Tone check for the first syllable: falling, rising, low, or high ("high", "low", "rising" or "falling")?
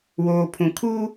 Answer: low